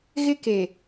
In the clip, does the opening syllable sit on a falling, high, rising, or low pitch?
high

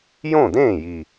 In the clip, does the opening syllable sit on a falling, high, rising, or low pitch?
falling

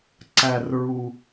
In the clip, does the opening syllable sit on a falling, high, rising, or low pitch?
low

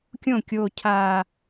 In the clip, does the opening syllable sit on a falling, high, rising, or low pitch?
falling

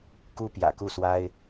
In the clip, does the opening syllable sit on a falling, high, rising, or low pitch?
high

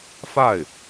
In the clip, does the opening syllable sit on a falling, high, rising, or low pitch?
falling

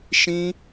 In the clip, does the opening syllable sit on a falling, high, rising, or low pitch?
high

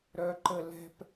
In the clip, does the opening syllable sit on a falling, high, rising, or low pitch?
low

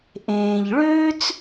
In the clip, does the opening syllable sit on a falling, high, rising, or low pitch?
low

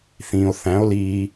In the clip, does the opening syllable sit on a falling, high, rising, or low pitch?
low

